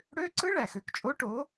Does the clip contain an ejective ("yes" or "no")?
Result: yes